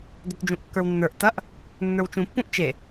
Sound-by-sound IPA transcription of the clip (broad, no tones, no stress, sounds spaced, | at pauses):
d œ t d͡ʒ ũ ʔ kː ə˞ w nː ə˞ ʔ t ɐ ʔ | nː ə˞ w t͡ʃ ũ pː ũ ʔ t͡ʃ e